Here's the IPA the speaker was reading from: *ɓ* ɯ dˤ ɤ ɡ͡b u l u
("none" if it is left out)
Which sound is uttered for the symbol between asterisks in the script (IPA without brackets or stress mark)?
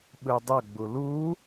ɓ